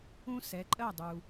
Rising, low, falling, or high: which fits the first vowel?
high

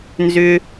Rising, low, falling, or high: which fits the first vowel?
high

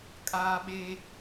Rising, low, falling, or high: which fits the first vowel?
high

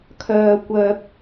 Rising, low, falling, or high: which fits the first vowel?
low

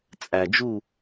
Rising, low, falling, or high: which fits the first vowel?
low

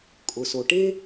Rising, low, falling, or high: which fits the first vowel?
low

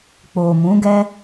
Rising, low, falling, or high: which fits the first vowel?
low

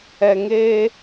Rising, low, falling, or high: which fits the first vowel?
low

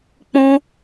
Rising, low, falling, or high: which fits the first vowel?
high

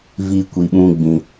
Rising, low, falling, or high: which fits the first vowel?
high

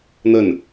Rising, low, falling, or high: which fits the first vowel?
falling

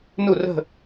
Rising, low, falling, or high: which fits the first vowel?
falling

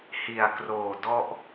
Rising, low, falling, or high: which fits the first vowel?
low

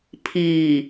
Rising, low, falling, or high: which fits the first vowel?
low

